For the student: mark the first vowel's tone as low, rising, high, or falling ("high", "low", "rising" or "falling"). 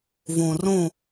low